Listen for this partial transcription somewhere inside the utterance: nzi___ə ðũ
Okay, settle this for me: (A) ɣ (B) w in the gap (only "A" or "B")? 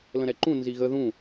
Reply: A